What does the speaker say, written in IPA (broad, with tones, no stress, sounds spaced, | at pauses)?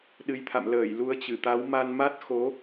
ɗ ɨ˨˦ j t̪ʰ a̰˧˨ m l əː˧˩ j l u˨˦ ə̯ t͡ɕ ɨ˧˩ t̪ a˨˦ w m a˧ n m a˦˥ t̚ x o˨˦